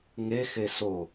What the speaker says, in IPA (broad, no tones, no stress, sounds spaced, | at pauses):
ŋ e x e s o